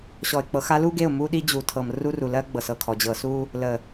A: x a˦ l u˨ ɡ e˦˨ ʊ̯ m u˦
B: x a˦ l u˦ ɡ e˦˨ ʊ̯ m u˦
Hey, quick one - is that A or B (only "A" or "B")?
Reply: B